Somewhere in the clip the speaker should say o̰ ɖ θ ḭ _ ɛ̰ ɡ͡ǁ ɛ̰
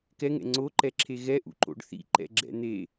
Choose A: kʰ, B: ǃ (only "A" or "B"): B